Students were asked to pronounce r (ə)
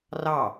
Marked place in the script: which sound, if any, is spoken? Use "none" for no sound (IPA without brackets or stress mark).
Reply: ɑ